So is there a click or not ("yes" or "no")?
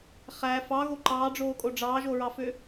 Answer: yes